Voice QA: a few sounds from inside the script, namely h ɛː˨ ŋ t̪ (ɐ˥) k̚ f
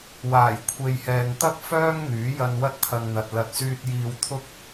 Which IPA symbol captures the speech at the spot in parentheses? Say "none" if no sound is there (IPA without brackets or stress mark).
ɐ˥